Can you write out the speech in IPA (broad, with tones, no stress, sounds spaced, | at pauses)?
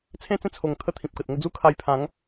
t͡sʰ ẽ˥˧ t͡s ẽ˥˧ t͡sʰ o˨˩ ŋ t̪ʰ ə˥˧ t̪ʰ ĩ˨ p̚ k ə˨ t̚ ŋ ə˧ d͡z u˦ kʰ a˧ j pʰ ã˨˦ ŋ